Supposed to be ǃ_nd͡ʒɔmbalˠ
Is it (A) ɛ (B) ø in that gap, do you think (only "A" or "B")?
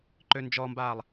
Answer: B